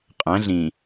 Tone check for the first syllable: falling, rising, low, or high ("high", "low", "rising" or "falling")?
rising